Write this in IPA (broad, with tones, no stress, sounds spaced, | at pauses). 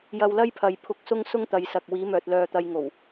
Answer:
j ɐ˧ w l ɐ˥ j pʰ ɐ˨ j pʰ ʊ˧ k̚ s ʊ˥ ŋ s ʊ˥ ŋ t̪ ɐ˨˧ j s ɐ˨ k̚ w iː˨˧ m œː˨ t̚ l œː˧ t̪ ɐ˧ j ŋ o˨˩ w